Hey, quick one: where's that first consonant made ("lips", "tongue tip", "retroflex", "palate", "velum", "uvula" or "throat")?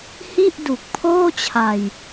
throat